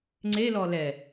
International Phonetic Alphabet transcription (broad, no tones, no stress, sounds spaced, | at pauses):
ŋ͡ǀ e l ɔ l ɛ